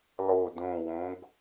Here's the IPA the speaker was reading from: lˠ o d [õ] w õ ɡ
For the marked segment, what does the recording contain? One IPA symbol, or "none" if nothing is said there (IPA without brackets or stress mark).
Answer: õ